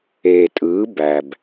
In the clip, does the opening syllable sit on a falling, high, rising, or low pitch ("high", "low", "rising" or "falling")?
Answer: low